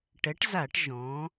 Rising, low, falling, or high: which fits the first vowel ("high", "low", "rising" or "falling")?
rising